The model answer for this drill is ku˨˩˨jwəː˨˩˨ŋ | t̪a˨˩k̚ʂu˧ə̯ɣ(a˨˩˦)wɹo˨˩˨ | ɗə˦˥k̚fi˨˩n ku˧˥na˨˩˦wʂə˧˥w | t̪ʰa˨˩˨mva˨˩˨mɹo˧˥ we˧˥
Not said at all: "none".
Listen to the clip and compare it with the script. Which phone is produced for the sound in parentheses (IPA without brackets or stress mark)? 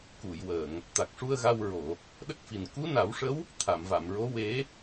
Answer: a˧